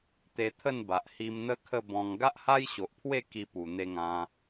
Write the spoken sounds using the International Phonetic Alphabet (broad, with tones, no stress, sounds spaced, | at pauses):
t̪ e˧ t̪ʰ ə˥˧ n b a˨ ʔ h i˧ m n̪ ə˦ kʰ ə˥˧ b ɔ̃˧ ŋ ɡ a˦ ʔ h a˦ j ɕ o˨ ʔ pʰ w e˥˧ k i˧ p u˨˩ n̪ e˧ ŋ ã˧